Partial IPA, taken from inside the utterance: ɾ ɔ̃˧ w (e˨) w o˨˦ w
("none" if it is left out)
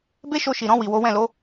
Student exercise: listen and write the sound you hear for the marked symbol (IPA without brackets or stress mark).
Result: i˨